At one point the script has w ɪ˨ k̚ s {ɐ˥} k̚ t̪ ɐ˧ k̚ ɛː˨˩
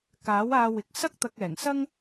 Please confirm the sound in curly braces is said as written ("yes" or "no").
yes